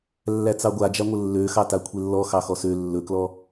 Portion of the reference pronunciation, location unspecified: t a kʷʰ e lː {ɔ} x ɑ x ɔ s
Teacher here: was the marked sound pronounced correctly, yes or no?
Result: yes